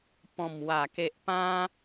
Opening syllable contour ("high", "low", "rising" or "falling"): low